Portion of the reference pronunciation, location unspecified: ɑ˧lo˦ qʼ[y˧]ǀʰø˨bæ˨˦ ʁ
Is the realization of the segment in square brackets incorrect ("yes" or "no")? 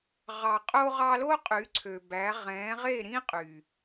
yes